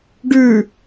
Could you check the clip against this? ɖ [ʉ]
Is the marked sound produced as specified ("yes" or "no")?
yes